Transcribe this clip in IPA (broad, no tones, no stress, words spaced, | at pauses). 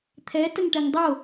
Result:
t̪ʰɛ təŋʈɛŋdˤo